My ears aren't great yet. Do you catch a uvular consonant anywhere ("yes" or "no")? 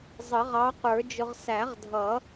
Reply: yes